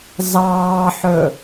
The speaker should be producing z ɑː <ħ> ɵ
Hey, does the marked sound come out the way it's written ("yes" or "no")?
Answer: yes